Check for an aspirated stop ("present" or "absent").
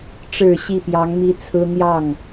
present